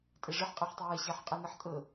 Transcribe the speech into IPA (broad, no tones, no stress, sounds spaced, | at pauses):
tʼ ɛ ʐ ə ħ qʼ a ħ tˤ e w ɛ ɕ a ħ qʼ ɛ n ɤ ħ tʼ ɤ